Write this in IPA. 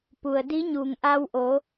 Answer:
p u˩ ə̯ d iː˧˥ ɲ uː˩ ŋ ʔ a˧ w ʔ oː˩˧

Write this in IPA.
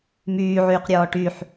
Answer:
m yː ʕ yː q ɾʲ ɔː ʈ y ħ

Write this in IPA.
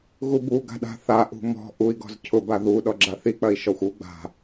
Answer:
ɣ u b u ɡ a̤ ɗ a̤ θ a ʔ ṳ m ɔ̤ ʔ u i̯ ɡ ɔ̤ z cʰ ʊ b a ð u ɗ ɔ ɡ͡ǁ a θ i k͡p ɐ i̯ ʃ ɔ xʷ u ɡ͡b a̤

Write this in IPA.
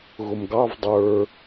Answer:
ɣ ʊ m ɡ ɑ v dˤ ə˞

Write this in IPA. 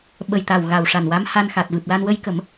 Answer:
ɓ ə˨˩ j t̪ a˨˩ w ɣ a˨˩ w ʂ a˨˩ n w a˧˥ m h a˧ n x a˨˩ t̚ v ɨ˨˩ p̚ l a˧ n w ə˧ j k ə˨˩˦ m

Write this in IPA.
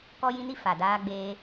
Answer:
k ɔ˦ j ĩ˦ n i˦ f a˨ d aː˧ ɡ͡b eː˧

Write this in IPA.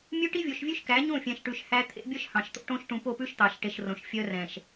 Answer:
mʲ ʉ˦ ʈ i˦ vʲ o˨ ʃ vʲ ʉ˦ ʃ k æ˨˦ ɲ õ˦˨ fʲ ɛ̃˨ ʃ ʈ ʉ˨ ʃ h æ˦ t̪ʰ ḛ˨˦ bʲ œ˦ ʃ h ɑ̃˨ ʃ t̪ o̰˦ ʈ õ˦ ʃ ʈ ũ˨ p o˦˨ p ʉ˦ ʃ t̪ ɑ˨ ʃ ʈ e˨ ʃ r õ˨ ʃ fʲ œ˦ r ɛ̃˨ ʃ

